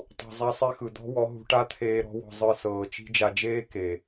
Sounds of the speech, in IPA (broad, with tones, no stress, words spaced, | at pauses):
tˤṳ˨zˤa˧sˤe˧ xɯ˨d̪ɔ̤˦wɔ˨˦ ɦṳ˧ʈa˦t̪ʰeː˧ ɾɔ̤˧ wɔ̤˨ zˤɯ˧sɤː˨ t͡ʃi̤˧d͡ʒa˨d͡ʒeː˦ ke˨